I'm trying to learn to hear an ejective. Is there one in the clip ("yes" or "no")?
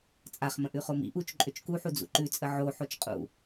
yes